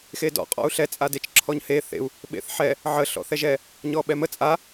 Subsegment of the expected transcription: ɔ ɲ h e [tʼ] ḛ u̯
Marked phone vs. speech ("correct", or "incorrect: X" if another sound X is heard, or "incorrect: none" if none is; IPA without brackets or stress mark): incorrect: θ